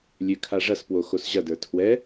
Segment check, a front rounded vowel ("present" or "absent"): present